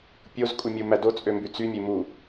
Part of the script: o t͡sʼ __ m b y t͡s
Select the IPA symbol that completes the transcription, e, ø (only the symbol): ø